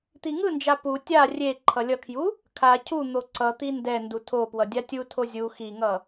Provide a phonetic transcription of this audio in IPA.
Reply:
t̪ i ŋ ɯ n d͡ʒ a p u tʲ a rʲ e ǃʰ ʌ lʲ ʌ kʰ j u | kʰ a cʰ u n̪ o ǀ ʌ t̪ i n d ɛ n d u tʰ o p w ʌ dʲ a tʲ u tʰ o zʲ u x i ŋ ʌ

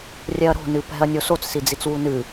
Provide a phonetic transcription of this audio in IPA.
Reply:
rʲ ɛ ɐ̯ ɾ o̤ n ɨ p ɛ̤ ɐ̯ nʲ o s o t͡s s i d͡z i t͡s w u n ɨ

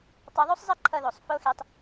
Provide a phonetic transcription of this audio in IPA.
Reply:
tˤ a˧ ðˤ u˥ sˤ zˤ ɛ˥ ǃʰ ʌ˧ ð o˩ sˤ f o˥ x e˧ tˤ

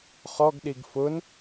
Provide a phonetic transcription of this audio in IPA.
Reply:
χ ɔ ɡ ɗ i ɡ f ʊ n

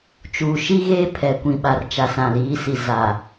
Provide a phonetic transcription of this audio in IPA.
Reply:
t͡ʃ uː˨ ʃ i˦ ɣ eː˦ pʰ ɛ˨ kʷ ĩ˨ ɓ a˨ r t͡ʃ a˨ s ã˨ l iː˨˦ s i˨ z a˨

